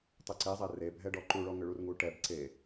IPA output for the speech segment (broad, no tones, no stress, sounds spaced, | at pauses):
tˤ ʏ ǀ e zˤ ɛ r e bʱ ɛ ɖ ɔ ǃ u ɭ ɔ ŋ ʏ ɭ u r ŋ u ʈ ɛ b ǀ e